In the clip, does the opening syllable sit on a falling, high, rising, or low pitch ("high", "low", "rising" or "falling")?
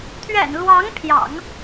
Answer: low